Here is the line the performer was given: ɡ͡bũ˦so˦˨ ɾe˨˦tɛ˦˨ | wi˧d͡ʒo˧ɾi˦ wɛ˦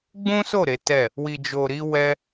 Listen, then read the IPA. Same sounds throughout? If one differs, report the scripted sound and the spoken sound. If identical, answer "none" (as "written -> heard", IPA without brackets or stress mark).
none